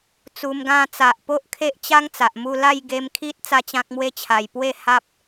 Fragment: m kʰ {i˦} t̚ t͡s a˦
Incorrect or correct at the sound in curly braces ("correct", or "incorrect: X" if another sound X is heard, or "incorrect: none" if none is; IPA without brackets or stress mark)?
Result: correct